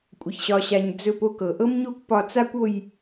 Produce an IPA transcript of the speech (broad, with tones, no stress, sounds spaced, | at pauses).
kʷʼ ə˧˩ ç ɕ ɒ˧ ɕ a˧ ɲ d͡z ɵ˥˧ p o˥ k ɤ˩˧ ʔ ɤ˥ m ɲ o˥ kʷ p ɒ˧ t͡s a˥ kʷ o˥˧ j